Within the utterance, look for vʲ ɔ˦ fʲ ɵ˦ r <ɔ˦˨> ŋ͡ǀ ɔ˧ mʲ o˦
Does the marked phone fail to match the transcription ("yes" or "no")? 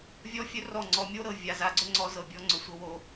no